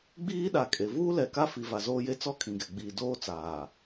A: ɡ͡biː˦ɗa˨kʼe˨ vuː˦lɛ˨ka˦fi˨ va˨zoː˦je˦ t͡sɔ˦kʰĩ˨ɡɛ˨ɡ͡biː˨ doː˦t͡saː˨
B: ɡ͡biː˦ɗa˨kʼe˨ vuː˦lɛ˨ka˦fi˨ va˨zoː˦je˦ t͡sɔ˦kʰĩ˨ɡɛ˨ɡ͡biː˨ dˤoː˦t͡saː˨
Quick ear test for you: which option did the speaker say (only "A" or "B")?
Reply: A